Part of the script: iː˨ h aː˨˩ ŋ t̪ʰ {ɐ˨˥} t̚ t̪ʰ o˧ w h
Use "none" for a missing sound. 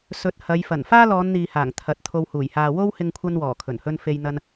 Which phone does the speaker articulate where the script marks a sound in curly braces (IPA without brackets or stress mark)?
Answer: ɐ˨˥